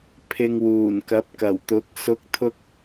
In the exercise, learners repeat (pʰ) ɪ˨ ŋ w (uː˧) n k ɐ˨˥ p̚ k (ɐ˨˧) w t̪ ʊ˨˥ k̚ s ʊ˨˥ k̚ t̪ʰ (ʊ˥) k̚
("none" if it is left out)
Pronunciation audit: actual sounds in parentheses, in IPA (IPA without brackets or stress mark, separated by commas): pʰ, uː˨˩, ɐ˨˩, ʊ˧